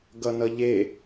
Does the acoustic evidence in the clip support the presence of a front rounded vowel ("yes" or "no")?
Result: no